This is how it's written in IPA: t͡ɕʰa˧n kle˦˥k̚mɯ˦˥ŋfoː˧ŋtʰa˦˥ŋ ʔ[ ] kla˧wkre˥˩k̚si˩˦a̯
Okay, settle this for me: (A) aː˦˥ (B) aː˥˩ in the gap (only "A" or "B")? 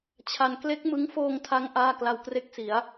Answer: B